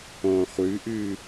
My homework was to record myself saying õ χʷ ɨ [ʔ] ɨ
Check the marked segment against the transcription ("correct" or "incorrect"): correct